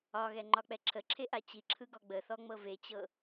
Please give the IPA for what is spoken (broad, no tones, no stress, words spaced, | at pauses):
ɒɣɛŋ͡ǃɒk͡pɛ ǁʰəǁʰeʔa t͡ɕiǁʰɯɡɔ ɡ͡bəθɔŋ͡mɤ vet͡ɕɤ